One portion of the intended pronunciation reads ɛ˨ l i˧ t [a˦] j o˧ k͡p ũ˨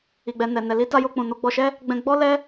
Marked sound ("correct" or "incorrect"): incorrect